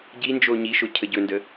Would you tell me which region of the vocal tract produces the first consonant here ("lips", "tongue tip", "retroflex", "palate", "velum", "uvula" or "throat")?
palate